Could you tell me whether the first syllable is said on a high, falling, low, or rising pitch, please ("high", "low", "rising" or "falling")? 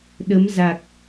rising